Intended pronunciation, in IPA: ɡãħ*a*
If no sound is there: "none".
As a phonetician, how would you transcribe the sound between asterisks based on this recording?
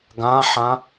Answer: ã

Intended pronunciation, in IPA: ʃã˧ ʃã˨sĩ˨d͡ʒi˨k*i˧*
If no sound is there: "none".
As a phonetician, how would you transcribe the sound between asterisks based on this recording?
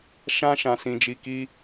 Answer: i˧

